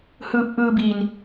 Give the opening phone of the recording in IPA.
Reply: h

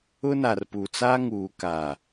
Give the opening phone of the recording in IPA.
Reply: ʊ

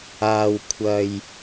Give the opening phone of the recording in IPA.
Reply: aː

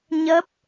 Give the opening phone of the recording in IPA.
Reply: ɲ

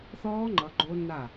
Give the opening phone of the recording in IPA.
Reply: θ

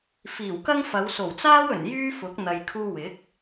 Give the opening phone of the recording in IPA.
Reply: f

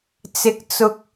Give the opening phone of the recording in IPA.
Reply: t͡s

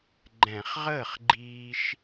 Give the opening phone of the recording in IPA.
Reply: ɡ͡ǃ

